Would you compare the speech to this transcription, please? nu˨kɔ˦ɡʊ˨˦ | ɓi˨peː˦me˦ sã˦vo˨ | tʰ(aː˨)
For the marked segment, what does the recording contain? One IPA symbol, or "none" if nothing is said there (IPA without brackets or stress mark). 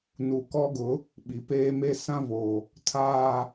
aː˨